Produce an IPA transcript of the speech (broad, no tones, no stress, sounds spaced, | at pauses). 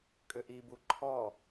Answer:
kʼ ʏ ʔ i b u ǃʰ ɔ